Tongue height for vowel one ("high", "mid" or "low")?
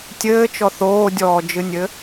mid